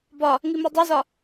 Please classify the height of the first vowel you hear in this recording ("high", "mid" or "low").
low